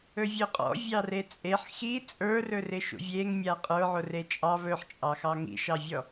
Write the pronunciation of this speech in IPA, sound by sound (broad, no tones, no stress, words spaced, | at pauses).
ɵvʲɵqʼɔ̰ vʲɑret͡sʼeħ xi t͡sʼə˞rɵ rɪʃṵvʲeŋ mʲaqʼə˞ ʕoret͡ʃʼɑ βɵħt͡ʃʼɑxɑ ŋḭʃɑvʲɔ